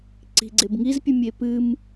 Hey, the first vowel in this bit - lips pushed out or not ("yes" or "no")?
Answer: no